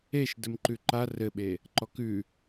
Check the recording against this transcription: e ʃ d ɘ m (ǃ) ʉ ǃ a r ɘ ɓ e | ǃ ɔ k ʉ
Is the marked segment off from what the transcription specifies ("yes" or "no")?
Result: no